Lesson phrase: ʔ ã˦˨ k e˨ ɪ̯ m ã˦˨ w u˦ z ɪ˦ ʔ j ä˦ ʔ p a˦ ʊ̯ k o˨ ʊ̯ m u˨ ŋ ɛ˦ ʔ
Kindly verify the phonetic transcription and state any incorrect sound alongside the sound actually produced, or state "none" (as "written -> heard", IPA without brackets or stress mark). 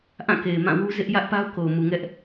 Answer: none